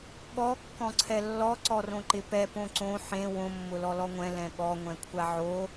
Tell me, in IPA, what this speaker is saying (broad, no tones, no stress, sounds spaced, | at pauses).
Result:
ɠ ɔ kː ɔ̃ ǀʰ ɛ lː ɔ ǀ ɔ r õ ǃ ɪ p ɛ p õ ǀ õ ħ ẽ w õ mː ʊ l ɔ l ɔ ŋʷ ɛ̃ l ɛ̃ ɠ ɔ ŋʷ ɛ̃ kʷʰ a ʕ o